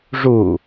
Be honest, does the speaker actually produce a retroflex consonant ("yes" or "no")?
yes